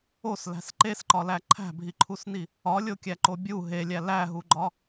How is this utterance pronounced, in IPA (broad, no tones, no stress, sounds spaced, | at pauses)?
o s l æ̤ s ǃ e s ǃ ɒ l æ ǃʰ æ̤ bʱ i ǃʰ u s n i | ɒ lʲ o kʲ æ ǃ o bʲ u ɦ e lʲ æ l æ ɦ u ɡ͡ǃ ɒ